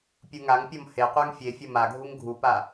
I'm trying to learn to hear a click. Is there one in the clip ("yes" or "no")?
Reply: no